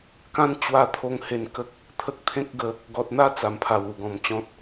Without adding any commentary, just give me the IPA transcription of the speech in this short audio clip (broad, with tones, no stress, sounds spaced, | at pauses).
k ã˦ n t͡ɕ w a˧ t̪ʰ o˧ ŋ h e˧ n k ə˦ k̚ | t̪ʰ ə˦ k̚ t̪ʰ ẽ˦ k̚ ɡ ə˨˦ | ɡ ɔ˨ t̚ n̪ a˥˧ t͡s a˨˩ m pʰ a˨˩ w u˨˩ ɡ ɔ̃˨˩ m t͡ɕ ɔ̃˦ t̚